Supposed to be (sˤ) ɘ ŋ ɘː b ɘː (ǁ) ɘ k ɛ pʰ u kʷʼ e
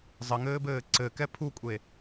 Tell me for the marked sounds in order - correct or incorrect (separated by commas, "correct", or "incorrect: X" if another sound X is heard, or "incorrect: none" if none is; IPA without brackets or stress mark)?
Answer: incorrect: zˤ, incorrect: ǀ